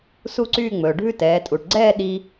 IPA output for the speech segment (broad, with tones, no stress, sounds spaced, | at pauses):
s u˥˧ ǀ yː˥˧ ŋ͡m ɵː˩ ɖʱ ʉ˥˧ t ɛː˩˧ tʼ u˩ ʈ ɡ͡ǀ ɛː˥˧ ɗ i˧